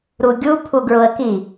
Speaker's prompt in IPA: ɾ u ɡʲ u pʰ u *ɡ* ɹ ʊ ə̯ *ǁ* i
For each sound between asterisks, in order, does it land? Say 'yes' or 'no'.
yes, no

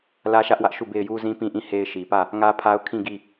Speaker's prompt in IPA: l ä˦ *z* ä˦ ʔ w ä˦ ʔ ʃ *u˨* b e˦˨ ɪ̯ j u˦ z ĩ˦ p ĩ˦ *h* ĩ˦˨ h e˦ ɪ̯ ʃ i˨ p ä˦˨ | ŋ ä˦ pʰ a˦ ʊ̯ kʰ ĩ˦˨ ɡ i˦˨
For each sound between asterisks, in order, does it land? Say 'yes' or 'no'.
no, no, no

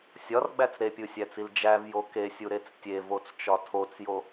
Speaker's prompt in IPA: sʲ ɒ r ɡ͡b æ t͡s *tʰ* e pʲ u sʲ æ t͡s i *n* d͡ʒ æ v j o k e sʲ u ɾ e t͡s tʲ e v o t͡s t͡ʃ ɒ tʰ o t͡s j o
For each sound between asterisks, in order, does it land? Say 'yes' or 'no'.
no, no

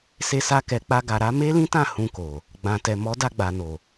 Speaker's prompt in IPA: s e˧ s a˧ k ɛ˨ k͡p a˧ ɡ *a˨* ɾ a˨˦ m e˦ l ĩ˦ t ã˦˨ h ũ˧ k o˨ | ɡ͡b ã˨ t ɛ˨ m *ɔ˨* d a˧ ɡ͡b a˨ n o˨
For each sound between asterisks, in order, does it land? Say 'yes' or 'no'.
yes, no

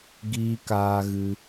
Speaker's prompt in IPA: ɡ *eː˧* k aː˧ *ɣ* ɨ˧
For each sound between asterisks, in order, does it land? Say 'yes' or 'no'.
no, yes

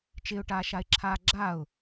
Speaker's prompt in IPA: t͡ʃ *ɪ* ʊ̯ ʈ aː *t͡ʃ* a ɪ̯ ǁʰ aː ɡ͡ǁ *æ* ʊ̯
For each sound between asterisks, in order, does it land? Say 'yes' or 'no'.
yes, no, no

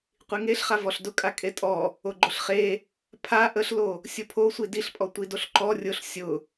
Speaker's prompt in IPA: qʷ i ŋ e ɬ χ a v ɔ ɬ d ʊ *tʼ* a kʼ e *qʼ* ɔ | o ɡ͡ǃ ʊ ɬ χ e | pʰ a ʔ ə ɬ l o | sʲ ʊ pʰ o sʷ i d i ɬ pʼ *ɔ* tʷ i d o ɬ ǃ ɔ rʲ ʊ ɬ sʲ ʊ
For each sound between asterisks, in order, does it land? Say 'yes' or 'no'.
no, no, yes

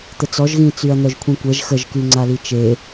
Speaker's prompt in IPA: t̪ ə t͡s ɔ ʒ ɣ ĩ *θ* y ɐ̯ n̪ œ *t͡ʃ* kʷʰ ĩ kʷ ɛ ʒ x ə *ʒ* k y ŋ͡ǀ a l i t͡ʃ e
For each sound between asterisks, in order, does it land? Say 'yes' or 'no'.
no, no, yes

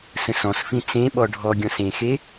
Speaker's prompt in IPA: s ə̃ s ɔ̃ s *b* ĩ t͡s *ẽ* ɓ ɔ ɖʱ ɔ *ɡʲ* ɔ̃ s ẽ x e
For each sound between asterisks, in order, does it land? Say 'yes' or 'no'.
no, yes, yes

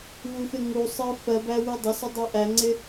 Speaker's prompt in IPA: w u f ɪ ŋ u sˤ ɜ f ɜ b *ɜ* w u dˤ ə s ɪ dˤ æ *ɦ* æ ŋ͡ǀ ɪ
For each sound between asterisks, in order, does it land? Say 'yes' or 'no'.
no, no

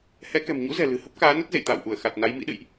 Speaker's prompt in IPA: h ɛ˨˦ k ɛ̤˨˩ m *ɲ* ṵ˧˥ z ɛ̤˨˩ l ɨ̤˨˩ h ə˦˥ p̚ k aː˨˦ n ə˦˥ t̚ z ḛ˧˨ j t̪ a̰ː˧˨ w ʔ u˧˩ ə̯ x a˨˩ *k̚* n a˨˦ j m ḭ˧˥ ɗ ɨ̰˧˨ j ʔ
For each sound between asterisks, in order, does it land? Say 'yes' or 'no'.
yes, no

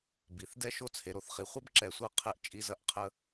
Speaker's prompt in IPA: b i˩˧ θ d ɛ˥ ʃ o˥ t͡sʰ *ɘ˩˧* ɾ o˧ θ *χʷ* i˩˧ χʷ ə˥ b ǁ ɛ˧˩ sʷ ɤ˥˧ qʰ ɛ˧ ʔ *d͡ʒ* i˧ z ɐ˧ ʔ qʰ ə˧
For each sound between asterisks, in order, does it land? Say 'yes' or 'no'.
no, no, no

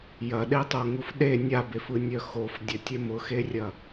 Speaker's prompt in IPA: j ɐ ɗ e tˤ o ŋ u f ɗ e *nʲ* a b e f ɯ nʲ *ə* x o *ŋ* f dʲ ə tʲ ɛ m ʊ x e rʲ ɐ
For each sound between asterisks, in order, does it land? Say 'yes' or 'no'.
yes, no, no

